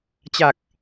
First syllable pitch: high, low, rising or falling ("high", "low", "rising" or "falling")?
low